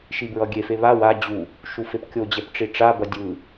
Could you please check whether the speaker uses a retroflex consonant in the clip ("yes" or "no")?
yes